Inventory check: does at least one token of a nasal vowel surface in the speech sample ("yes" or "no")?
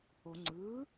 no